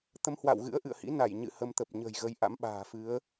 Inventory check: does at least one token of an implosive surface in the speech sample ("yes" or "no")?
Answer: yes